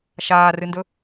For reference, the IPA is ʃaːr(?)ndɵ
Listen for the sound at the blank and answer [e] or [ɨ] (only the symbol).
ɨ